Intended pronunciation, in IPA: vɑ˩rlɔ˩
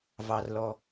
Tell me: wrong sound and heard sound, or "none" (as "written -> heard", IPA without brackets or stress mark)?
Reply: none